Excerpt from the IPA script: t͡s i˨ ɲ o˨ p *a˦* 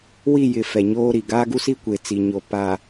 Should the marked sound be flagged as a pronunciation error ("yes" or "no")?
yes